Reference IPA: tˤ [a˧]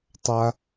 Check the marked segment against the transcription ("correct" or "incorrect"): correct